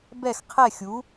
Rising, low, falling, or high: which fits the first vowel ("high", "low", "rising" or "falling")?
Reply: falling